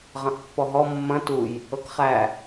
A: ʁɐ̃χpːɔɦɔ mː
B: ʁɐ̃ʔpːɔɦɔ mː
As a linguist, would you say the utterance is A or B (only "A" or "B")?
B